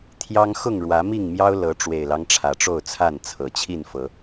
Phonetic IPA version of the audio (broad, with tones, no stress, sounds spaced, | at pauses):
t̪ʰ j ɑ˦ ŋ x ʊ˥˨ ŋ ɻ w ä˨˦ m i˥˨ ŋ m j ɑ˦ ʊ̯ l ɤ˨˦ ʈ͡ʂ w e˨˩ ɪ̯ l ɑ˦ ŋ ʈ͡ʂʰ ä˨˩ ʈ͡ʂ o˥˨ ʊ̯ t͡sʰ a˥˨ n t͡sʰ ɤ˨˩ t͡ɕʰ i˥˨ n f ɤ˨˦